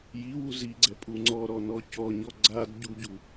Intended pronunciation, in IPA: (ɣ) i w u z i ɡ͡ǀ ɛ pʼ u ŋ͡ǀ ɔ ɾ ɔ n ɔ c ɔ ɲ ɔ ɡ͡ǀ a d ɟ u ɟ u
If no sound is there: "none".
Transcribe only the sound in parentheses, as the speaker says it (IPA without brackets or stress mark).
j